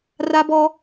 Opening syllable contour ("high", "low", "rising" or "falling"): high